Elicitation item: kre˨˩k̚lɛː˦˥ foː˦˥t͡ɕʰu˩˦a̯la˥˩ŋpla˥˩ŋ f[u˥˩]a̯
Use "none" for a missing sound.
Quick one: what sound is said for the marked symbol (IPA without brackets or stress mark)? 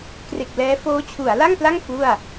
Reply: u˥˩